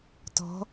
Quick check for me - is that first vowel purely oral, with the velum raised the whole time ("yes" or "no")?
yes